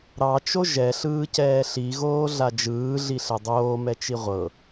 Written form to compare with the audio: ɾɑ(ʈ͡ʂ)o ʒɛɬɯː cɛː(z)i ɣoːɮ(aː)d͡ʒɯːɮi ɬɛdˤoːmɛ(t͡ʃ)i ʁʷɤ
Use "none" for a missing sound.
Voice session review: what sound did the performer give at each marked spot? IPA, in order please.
t͡ʃ, ɬ, a, t͡ʃ

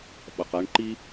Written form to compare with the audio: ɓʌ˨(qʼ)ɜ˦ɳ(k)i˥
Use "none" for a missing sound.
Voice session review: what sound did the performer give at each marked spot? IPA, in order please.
q, ǃ

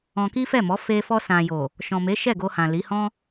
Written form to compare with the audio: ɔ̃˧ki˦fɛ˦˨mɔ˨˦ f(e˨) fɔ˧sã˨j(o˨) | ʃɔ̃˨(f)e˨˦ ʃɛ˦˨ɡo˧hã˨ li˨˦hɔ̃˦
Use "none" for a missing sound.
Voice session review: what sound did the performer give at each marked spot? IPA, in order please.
e˧, o˨, m

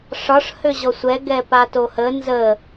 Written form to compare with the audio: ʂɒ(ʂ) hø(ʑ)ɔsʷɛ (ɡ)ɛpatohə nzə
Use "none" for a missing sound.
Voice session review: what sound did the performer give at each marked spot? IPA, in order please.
ʂ, ʑ, ɡ

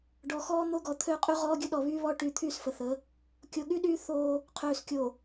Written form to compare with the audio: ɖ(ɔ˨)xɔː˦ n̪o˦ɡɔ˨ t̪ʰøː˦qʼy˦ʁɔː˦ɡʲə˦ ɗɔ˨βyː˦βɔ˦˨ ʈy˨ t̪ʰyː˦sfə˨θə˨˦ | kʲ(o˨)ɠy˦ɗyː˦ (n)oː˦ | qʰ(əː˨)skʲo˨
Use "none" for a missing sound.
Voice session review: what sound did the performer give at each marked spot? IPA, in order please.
ɔ˨, o˨, θ, øː˨

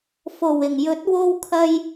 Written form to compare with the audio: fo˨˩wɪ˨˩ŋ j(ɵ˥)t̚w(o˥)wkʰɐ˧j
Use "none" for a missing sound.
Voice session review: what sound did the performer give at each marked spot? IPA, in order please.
ɵ˨˥, o˧

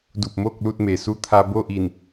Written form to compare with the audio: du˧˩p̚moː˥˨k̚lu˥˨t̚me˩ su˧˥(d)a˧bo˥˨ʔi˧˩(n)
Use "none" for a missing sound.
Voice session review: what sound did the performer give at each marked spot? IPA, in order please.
t̪ʰ, n

